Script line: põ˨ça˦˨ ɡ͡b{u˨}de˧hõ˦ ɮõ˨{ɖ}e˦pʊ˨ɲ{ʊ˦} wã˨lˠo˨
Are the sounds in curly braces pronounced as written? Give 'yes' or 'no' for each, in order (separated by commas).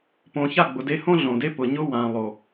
no, no, yes